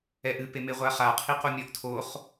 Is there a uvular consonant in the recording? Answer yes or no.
yes